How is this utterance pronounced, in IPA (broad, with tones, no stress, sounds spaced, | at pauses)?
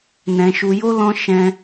n ɛ̃˧ ʃ u˧ j o˦ l ɔ̃˦ ʃ ɛ̃˦